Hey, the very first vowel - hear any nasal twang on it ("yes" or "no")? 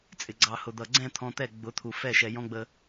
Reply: no